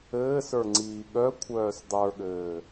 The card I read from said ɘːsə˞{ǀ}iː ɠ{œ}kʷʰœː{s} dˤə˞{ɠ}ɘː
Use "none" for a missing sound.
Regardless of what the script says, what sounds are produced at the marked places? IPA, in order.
ŋ͡ǀ, œ, s, ɠ

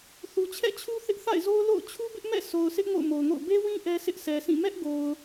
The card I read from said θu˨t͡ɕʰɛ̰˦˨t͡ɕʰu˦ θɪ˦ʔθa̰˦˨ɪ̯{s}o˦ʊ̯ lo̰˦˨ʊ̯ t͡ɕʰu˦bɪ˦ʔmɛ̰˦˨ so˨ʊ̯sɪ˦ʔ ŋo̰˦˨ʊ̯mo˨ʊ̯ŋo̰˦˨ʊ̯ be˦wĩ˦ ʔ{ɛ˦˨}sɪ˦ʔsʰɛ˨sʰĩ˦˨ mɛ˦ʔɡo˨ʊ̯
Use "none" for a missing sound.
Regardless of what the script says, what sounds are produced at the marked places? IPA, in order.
z, ɛ˦

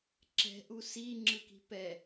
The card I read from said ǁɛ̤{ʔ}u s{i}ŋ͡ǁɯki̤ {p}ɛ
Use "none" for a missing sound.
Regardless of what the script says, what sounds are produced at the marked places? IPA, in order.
ʔ, i, p

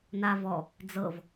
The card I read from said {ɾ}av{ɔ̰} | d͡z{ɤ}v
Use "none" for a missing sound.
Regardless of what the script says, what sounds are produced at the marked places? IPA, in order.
n, ɔ, ɤ

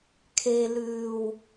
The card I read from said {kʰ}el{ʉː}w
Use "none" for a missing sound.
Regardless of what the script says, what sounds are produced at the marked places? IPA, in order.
kʰ, ʉː

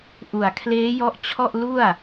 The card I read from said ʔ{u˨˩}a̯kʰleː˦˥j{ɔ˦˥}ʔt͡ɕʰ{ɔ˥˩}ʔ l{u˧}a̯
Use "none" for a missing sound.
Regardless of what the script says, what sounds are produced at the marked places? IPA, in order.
u˨˩, ɔ˦˥, ɔ˥˩, u˥˩

